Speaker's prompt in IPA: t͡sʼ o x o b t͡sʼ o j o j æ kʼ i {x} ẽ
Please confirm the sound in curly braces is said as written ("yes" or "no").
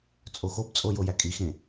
yes